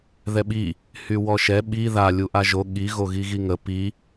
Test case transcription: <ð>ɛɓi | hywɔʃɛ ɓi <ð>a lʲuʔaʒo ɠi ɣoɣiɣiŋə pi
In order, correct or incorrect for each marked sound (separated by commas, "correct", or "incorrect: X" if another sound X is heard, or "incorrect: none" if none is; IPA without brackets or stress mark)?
correct, correct